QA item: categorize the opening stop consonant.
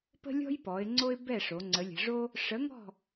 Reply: plain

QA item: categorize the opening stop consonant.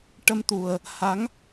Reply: plain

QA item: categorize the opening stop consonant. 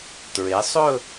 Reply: plain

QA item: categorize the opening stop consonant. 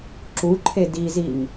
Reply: click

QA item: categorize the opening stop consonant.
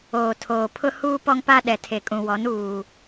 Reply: aspirated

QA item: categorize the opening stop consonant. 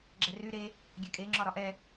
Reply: click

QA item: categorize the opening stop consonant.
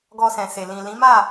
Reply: plain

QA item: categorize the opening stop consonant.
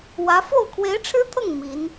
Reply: aspirated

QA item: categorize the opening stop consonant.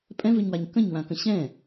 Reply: ejective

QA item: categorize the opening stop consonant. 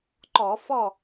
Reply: click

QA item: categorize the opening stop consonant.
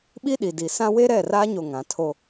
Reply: implosive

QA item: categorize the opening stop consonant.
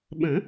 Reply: implosive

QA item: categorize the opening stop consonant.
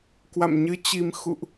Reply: plain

